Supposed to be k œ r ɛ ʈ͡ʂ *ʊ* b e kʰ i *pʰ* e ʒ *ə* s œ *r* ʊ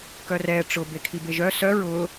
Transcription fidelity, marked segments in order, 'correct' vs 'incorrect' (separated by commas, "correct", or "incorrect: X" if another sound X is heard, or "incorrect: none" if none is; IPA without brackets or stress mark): correct, incorrect: b, incorrect: œ, incorrect: ɹ